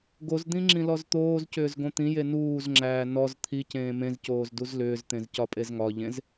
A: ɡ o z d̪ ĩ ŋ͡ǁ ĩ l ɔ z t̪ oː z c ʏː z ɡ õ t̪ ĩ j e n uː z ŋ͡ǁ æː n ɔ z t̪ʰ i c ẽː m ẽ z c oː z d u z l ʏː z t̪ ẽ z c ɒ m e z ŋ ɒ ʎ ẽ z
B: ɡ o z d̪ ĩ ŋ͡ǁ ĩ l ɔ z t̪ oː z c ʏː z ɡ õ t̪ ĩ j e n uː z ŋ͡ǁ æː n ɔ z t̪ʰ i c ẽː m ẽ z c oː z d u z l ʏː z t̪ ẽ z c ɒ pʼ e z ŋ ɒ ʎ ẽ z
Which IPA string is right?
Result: B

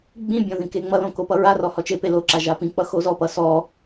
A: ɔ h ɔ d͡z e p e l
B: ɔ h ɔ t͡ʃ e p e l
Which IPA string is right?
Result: B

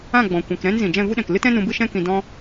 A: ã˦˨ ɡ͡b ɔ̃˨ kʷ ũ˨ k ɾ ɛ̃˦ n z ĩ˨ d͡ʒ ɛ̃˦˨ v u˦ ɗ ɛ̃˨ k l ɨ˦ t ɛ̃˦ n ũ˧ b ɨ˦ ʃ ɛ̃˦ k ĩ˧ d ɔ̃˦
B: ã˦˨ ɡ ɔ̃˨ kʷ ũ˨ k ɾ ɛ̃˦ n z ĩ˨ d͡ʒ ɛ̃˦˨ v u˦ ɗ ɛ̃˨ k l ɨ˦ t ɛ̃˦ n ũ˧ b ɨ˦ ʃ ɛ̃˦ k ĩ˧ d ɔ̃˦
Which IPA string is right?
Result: A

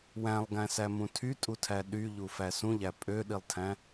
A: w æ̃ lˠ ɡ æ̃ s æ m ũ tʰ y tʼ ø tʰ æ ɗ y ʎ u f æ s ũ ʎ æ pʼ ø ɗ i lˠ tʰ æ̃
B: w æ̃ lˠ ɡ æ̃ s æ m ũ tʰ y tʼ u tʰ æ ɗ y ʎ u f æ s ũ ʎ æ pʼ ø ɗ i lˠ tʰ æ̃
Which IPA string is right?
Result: B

